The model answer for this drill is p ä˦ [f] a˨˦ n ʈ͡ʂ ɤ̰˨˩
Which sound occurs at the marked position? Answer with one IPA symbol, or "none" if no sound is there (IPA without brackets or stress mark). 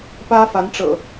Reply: f